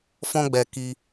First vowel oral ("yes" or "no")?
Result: no